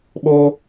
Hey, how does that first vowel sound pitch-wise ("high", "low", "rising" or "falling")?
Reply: high